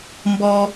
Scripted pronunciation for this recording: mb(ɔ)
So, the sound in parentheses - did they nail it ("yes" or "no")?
yes